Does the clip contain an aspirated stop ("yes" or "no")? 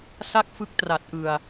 no